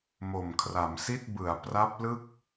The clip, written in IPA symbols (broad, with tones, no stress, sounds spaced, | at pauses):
m o˨˩ m kʰ r a˩˦ m s i˥˩ t̚ b ɯ˩˦ a̯ p r a˦˥ p̚ l ɯ˥˩ k̚